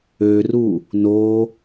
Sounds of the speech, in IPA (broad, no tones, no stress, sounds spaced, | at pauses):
ø r u | n o